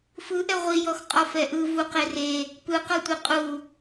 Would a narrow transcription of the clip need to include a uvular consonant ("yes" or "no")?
yes